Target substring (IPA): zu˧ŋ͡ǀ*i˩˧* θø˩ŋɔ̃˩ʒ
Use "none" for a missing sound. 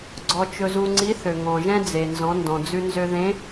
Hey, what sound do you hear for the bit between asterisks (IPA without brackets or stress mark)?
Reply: i˧˥